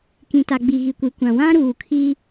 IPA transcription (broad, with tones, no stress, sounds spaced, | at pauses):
k ĩ˨ t a˨ ɡ͡b i˨ ɣ i˨ kʷ i˨ kʷ ã˨ w ã˦ ɾ uː˨ kʰ i˦